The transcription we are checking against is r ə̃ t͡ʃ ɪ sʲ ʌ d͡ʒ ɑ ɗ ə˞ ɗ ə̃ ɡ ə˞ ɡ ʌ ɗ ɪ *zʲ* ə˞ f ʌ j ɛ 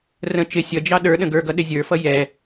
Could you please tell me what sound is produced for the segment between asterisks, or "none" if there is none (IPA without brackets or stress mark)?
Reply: zʲ